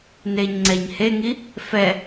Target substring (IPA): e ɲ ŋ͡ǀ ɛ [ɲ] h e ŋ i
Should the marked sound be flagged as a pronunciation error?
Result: no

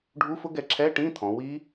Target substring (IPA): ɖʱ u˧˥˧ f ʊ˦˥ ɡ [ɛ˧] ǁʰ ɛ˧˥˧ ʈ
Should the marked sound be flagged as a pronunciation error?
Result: no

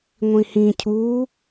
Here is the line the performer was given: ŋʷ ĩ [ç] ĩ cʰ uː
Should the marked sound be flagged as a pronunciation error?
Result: yes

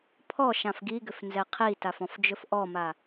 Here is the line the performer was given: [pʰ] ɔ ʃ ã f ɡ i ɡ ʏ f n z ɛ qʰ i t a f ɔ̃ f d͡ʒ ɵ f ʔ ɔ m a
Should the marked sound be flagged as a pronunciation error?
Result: no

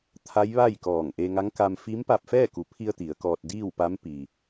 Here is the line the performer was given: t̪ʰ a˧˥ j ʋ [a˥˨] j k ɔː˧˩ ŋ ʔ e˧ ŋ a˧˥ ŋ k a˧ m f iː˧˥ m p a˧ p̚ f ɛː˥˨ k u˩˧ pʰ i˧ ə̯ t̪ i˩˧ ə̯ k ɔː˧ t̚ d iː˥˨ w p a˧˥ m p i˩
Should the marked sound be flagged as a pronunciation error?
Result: no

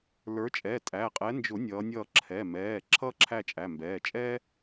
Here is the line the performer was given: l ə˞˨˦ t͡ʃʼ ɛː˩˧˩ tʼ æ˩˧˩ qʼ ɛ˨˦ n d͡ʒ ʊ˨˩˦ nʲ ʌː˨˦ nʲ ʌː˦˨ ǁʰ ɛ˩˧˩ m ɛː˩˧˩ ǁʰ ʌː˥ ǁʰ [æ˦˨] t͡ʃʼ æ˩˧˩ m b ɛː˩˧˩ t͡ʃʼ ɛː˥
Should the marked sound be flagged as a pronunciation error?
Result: no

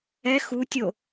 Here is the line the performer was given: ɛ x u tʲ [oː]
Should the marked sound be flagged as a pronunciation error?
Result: yes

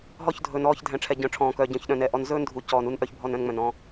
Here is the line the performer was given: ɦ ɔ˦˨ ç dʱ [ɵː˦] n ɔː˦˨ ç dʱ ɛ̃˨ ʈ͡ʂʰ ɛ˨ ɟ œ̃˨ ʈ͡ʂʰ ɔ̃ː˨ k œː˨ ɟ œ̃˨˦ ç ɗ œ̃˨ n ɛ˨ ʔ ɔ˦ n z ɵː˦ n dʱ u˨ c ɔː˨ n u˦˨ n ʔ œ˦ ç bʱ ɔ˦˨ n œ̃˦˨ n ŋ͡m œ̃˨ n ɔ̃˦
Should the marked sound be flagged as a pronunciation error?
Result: yes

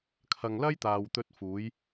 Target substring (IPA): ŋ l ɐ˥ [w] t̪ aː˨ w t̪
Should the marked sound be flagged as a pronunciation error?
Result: yes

